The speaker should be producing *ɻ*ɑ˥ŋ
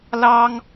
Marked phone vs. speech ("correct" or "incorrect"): incorrect